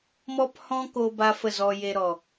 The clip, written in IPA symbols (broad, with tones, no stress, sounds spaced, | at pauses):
m ɔ˦ p h ɔ̃˦ k o˧ b a˧ f ə˦˨ z ɔ˧ j e˧ ɾ ɔ˨